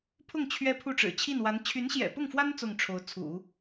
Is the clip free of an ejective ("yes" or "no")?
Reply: yes